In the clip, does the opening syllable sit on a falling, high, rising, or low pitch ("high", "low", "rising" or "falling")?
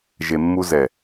low